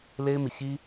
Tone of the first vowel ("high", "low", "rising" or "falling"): high